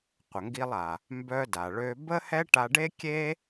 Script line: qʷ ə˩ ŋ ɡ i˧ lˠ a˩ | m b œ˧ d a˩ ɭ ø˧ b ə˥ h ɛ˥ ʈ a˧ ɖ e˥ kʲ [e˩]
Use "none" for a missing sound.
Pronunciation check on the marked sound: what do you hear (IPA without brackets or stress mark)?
e˥